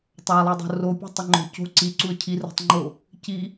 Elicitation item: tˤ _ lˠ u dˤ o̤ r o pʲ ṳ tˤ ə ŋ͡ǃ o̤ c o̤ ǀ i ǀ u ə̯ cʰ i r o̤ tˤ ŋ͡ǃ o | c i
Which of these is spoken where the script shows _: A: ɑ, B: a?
A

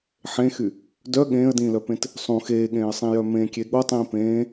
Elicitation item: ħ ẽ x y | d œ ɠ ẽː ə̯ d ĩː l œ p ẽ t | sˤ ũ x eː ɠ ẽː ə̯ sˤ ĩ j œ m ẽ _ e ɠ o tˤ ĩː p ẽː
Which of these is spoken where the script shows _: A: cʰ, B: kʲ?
B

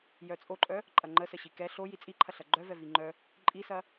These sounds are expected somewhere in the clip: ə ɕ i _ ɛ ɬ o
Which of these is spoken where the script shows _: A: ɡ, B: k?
B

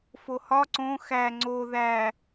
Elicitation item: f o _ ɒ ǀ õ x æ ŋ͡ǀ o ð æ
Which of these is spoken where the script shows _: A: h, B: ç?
A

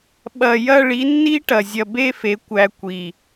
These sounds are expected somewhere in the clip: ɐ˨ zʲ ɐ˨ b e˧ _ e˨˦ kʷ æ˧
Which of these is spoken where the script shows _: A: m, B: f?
B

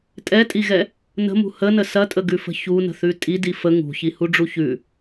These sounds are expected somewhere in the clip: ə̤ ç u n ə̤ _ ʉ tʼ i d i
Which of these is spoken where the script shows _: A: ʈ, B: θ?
B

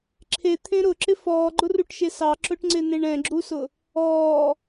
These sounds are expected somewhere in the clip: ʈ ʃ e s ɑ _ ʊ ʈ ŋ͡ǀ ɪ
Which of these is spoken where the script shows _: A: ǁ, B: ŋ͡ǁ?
A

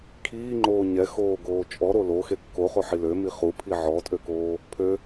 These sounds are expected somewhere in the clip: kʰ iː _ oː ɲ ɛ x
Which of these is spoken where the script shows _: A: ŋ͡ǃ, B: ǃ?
A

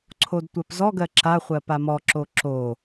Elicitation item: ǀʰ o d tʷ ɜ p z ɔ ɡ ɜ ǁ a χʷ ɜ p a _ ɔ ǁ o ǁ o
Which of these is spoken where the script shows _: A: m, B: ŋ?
A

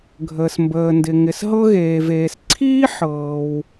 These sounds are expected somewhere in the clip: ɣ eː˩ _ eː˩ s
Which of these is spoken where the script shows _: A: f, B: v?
B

